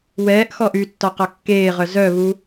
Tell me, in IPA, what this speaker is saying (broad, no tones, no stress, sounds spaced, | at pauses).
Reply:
w ɛː ʔ x ɔ ʔ y tː ɒ q ɒ kː eː ʁ œ z œ β u